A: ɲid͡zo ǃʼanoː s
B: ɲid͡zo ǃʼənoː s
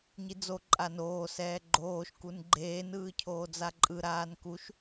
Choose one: A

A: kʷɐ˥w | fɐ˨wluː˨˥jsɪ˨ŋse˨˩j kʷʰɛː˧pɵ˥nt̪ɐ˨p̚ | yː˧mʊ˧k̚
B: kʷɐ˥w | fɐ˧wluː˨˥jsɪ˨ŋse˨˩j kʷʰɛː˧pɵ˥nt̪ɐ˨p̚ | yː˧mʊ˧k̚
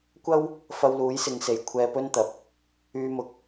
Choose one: B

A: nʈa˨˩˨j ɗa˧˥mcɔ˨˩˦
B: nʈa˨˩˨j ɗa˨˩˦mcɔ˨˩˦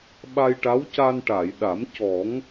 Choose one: B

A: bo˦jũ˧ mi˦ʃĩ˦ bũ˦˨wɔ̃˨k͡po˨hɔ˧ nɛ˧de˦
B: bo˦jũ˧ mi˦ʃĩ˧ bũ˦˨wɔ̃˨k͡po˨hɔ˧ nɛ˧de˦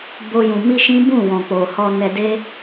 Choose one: A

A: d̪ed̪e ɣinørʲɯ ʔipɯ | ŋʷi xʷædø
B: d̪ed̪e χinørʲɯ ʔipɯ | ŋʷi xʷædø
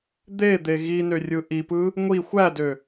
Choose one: A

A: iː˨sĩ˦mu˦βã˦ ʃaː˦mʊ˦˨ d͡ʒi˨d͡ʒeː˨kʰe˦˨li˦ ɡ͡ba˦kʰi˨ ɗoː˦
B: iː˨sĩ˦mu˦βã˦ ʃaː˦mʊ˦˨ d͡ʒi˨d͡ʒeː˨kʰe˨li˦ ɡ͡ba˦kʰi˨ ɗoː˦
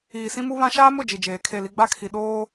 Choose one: A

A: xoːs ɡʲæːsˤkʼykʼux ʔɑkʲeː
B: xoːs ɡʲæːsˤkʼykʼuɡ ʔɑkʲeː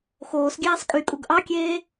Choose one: B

